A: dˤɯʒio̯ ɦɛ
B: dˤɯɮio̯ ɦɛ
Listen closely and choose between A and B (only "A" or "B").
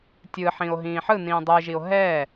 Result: A